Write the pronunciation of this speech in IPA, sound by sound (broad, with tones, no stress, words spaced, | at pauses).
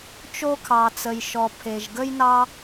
t͡ʃo˧kʰɑ˩t͡sə˩jʃɔ˩ pʰe˩ʒɡə˥jnɑ˥